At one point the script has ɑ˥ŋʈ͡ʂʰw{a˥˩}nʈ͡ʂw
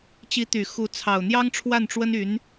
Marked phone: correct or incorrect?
correct